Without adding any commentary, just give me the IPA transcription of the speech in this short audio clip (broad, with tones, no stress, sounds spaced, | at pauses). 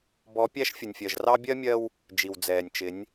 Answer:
b ɔ˨˦ pʲ æ˦ ʃ fʲ ə˨ nʲ fʲ ɜ˨ ʒ r ɑ˦ bʲ ɜ˦ mʲ ɜ˦ w | d͡ʒ i˨ w d͡z ɛː˨ nʲ t͡ʃ ɪ˨˦ nʲ